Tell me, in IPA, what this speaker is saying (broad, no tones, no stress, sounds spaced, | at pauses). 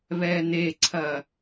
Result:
β ɛ n̪ e ǀʰ ɐ